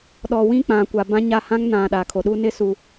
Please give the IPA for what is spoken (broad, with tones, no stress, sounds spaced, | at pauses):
ɗ ɔ˨ w ĩ˦ k͡p ã˨ kʷ a˨ b ã˦ ɲ a˦˨ h ã˦ ŋ n ã˨ ɗ a˨ kʰ o˨ ɗ u˦ n ɪ˦ s u˨